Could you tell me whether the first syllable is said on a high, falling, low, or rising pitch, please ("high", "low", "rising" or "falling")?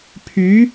rising